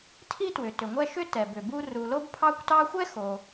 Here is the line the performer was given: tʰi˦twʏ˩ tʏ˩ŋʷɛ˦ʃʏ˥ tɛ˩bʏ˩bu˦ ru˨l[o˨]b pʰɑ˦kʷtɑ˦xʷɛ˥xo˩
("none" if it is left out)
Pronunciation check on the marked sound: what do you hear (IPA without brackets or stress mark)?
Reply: o˥